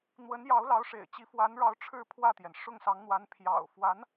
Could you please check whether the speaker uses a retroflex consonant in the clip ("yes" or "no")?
yes